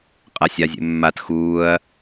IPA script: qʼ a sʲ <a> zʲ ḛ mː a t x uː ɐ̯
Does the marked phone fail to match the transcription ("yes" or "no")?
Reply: no